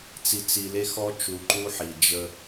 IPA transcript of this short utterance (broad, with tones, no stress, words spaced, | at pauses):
t͡si˨t͡si˨le˦xɔ˦ t͡ʃu˨ǃu˦ħi˨ d͡ʒə˦